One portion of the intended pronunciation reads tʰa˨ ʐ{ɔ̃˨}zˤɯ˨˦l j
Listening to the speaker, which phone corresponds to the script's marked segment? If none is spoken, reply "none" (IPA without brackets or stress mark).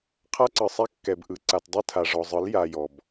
ɔ˨